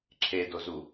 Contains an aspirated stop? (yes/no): yes